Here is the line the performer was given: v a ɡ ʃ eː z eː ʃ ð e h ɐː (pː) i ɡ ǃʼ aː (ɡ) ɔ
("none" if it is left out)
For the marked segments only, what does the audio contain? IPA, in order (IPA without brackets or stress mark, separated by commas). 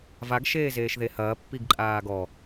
pː, ɡ